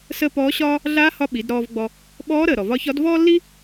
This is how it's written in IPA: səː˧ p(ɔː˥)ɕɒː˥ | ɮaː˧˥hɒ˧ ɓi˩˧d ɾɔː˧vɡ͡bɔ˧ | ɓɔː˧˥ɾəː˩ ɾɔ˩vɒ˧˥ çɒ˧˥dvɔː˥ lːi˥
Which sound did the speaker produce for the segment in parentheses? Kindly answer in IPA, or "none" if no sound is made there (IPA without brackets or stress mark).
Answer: ɔː˧˥